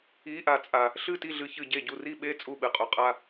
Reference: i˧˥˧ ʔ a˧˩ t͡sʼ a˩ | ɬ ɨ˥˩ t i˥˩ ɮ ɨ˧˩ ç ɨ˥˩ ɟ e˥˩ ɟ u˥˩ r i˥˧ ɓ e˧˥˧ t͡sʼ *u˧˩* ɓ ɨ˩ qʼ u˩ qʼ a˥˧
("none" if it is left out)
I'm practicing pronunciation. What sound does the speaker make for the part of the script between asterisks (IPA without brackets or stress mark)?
u˥˩